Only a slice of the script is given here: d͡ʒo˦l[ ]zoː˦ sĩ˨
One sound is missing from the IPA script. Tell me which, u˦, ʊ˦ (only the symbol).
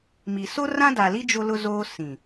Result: ʊ˦